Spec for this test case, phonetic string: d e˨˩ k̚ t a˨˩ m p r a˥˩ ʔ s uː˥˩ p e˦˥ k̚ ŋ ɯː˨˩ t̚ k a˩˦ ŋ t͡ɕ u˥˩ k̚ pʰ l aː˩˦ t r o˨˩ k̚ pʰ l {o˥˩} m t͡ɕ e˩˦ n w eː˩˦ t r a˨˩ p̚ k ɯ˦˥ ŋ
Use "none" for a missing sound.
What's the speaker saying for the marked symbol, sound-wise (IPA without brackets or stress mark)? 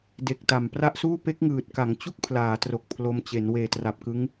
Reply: o˧